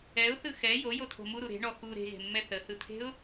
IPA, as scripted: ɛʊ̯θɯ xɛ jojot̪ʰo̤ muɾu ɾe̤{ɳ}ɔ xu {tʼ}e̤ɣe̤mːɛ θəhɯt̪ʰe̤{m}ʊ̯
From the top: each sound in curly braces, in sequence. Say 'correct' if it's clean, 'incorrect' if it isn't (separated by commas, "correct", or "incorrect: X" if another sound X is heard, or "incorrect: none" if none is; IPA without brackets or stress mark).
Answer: correct, incorrect: ɾ, incorrect: none